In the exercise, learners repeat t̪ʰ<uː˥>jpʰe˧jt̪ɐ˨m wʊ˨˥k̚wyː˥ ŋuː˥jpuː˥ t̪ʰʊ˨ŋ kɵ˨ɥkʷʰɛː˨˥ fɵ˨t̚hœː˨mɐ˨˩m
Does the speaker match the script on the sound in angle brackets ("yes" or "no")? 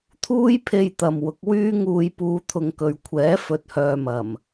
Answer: yes